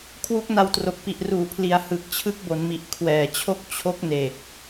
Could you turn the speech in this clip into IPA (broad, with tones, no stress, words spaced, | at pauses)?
kʰwu˦˥k̚na˧wtro˨˩k̚pi˨˩ʔ ruː˩˦pʰli˩˦a̯ hɯ˨˩k̚t͡ɕʰɯ˦˥k̚bo˩˦nmi˨˩ʔ kʰwɛː˨˩t͡ɕʰo˥˩k̚ t͡ɕʰo˦˥k̚ne˨˩k̚